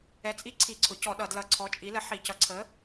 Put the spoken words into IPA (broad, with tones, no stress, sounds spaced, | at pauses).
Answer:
ɛ˨˥ t͡sʼ i˦ ǀʰ i˧˩˧ ǀʰ ʊ˩˧ c ɔ˧˩˧ ɗ ʌ˧˩˧ d l ʌ˧˩˧ ǀʰ ɔ˨˥ t͡ʃʼ i˨˥ l ə˨˥ ħ i˧˩˧ c ʌ˨˥ ǀʰ ə˨˥